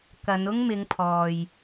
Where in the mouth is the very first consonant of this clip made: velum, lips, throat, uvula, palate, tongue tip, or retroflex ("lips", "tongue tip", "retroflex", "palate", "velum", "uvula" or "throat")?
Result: velum